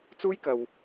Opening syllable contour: high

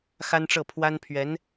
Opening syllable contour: high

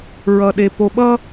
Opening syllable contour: low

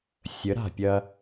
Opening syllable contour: rising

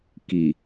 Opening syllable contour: low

